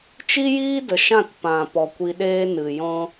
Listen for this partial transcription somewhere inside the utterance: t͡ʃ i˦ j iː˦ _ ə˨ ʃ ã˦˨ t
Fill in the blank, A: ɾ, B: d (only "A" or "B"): B